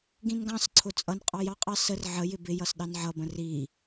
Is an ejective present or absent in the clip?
present